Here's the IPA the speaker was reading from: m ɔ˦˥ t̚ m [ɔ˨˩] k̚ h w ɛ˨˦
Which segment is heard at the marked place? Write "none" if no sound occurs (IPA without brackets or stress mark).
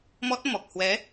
ɔ˨˩